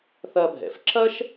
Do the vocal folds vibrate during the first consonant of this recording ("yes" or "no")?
no